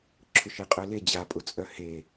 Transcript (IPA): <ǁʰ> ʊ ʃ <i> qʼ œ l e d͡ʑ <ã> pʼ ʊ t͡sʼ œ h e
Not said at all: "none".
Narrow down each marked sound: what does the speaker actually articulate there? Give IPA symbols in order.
ǁʰ, e, a

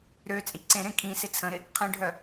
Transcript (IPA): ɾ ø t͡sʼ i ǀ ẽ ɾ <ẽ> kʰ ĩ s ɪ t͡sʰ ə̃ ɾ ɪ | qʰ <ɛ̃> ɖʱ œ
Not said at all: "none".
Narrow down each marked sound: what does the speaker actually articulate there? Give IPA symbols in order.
ẽ, ɛ̃

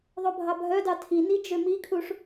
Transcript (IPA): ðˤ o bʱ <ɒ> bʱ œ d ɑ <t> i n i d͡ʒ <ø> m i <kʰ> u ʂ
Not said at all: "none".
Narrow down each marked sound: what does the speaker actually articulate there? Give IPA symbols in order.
ɑ, tʰ, ø, kʰ

